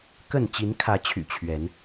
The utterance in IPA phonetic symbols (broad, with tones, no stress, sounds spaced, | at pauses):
k ə˥˨ n t͡ɕ i˨˦ n kʰ ä˨˦ t͡ɕʰ y̰˨˩ t͡ɕʰ ɥ ɛ˨˦ n